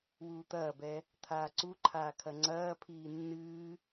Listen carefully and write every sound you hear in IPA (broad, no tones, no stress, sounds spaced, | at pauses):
w uː t̪ ɐː b ɛ | t̪ʰ aː ǀ u ǃʰ aː kʰ ɐ ŋ͡ǀ ɐː pʰ iː nː ɨː